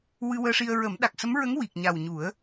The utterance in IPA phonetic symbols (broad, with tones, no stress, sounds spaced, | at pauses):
w ɨ˧ w əː˧ ʂ i˧ ə̯ ɹ ə˨˩˦ m ɗ a˨˩ k̚ s ə˧˥ m ɹ ə˧˥ ŋ w i˨˩ k̚ ɲ a˨˩ w ɲ u˨˩˦ ə̯